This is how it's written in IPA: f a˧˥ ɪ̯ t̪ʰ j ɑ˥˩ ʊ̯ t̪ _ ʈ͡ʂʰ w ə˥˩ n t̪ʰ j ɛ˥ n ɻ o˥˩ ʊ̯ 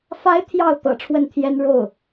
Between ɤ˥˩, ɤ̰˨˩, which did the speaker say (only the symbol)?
ɤ̰˨˩